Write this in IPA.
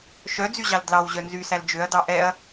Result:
ʃ œ d͡z y ʑ ɑ l d l ɑ w ʑ œ n z y s æ l d͡ʒ ø ɐ̯ d ɑ ʔ ɛ ɐ̯

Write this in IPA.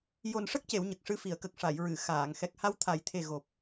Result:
j o˨˩ n ʂ ə˦˥ k̚ c e˨˩˨ w ɲ ə˨˩ k̚ ʂ ɨ˧ f i˨˩˨ ə̯ k ə˨˩ k̚ ʂ a˨˩˨ j ɹ ɨ˨˩˨ x aː˨˩˨ ŋ x ɛ˨˩ k̚ h a˧ w t̪ʰ a˨˩˦ j t̪ʰ e˨˩ ɣ o˨˩ p̚

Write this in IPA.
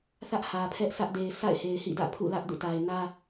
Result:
θ ä˦ ʔ h ä˨ pʰ ɛ˦ ʔ sʰ ä˦ ʔ d e˨ ɪ̯ sʰ a̰˦˨ ɪ̯ h e˨ ɪ̯ h ḭ˦˨ d ä̰˦˨ pʰ ṵ˦˨ l ä˦ ʔ d ṵ˦˨ t a˨ ɪ̯ n ä˦

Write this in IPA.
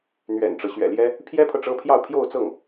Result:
n̪ ɥ ɛ̰˨˩ n ʈ͡ʂ ɤ˦ ɕ ɥ ɛ̰˨˩ l j ɛ˥ | pʰ j ɛ˥ pʰ ɤ˨ ʈ͡ʂ ɤ˥ pʰ j ɑ˥˧ ʊ̯ pʰ j o˥˧ ʊ̯ t͡s ɤ˥˩ ŋ

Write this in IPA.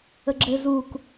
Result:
ə ɡ͡ǁ ɘ z u k

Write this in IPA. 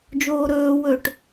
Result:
d͡ʒ oː ɾ ɵː w ɵ ʈ

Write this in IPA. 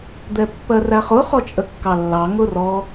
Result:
d̪ ɛ pː ɜ r æ χ ʊ χ ɔ t͡ʃʼ ə kː ɑ lː ɑ ŋ ʊ r ɔ

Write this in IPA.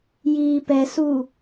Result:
j iː p ɛ s u

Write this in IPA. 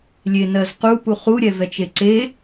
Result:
lʲ e n ɜ z q u p u χ u ɾʲ ɛ v ɛ t͡ʃ e ǀ e

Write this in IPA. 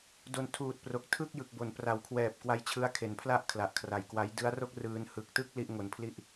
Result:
d o˨˩ n tʰ uː˨˩ t̚ p r o˨˩ k̚ tʰ ɯ˥˩ k̚ j ɯ˨˩ k̚ b o˨˩ n p r a˨˩ w kʰ w ɛː˨˩ p̚ k w a˦˥ j t͡ɕʰ ɯ˦˥ a̯ kʰ e˨˩ n pʰ l a˥˩ ʔ kʰ l a˨˩ ʔ kʰ r a˨˩ j k w a˦˥ j d ɯ˦˥ a̯ r o˥˩ k̚ r ɯː˧ n h ɯ˨˩ k̚ t ɯ˥˩ k̚ l i˥˩ ʔ ŋ o˧ n pʰ l i˥˩ ʔ

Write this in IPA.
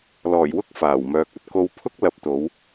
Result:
l ɔː˨˩ j w ʊ˥ k̚ f aː˨˩ w m œː˨ k̚ ɐ˧ t̚ k o˧ w pʰ ʊ˥ k̚ l ɐ˨˥ p̚ t̪ o˨˧ w

